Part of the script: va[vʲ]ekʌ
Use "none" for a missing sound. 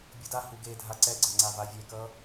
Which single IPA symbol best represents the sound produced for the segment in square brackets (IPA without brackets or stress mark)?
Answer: vʲ